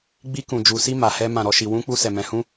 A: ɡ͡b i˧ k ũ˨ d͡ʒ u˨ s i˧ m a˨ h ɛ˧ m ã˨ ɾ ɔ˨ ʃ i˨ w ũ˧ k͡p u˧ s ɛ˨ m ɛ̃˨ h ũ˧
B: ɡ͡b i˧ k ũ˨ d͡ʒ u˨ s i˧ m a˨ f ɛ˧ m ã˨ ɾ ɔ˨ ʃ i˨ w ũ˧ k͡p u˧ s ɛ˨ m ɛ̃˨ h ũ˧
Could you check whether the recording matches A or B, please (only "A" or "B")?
A